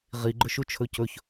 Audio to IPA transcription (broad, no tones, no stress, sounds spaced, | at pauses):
ʁ i ɡ͡ǃ ɵ ʃ u t͡ʃʰ ɵ c ɵ ç